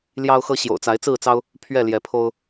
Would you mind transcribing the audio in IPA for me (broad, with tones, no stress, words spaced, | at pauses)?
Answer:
ljɑ˦ʊ̯xɤ˦ ɕjo̰˨˩ʊ̯t͡sa˨˦ɪ̯ t͡sɹ̩˥˨t͡sɑ˦ʊ̯ | pʰɥɛ˥˨ ljɛ˨˦pʰo˦ʊ̯